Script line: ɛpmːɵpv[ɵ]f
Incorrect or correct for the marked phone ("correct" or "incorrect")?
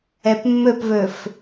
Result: correct